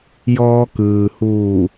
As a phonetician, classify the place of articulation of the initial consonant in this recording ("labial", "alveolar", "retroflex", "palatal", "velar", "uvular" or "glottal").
palatal